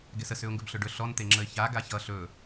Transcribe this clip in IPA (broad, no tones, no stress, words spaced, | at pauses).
ɡɛsəs ʏʊ̯ŋɡɵbɬɵɖɵ ɬɔn t̪eŋ͡ǁəɪ̯ça ɡaçʌ ɬɵ